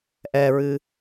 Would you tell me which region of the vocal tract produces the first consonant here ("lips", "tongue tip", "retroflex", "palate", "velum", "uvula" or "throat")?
throat